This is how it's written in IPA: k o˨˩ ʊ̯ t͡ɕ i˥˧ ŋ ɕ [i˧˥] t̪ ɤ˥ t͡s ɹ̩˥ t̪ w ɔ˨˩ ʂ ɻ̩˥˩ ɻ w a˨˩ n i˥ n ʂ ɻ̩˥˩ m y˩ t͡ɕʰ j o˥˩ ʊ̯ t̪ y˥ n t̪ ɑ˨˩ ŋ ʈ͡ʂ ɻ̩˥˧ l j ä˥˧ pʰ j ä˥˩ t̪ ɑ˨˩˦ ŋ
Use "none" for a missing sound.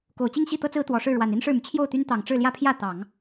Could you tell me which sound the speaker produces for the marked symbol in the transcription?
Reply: i˥˩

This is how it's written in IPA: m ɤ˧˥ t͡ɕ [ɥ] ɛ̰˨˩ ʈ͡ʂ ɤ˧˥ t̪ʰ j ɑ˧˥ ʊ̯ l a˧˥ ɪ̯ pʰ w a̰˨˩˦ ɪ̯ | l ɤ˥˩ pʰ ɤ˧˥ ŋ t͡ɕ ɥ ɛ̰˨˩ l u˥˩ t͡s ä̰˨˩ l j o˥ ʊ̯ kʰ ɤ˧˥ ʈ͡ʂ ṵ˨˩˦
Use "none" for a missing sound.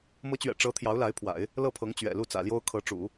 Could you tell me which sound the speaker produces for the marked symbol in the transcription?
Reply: ɥ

